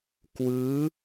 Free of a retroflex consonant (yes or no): yes